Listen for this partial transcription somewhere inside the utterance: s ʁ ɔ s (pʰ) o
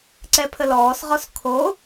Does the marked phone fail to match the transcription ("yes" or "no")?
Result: yes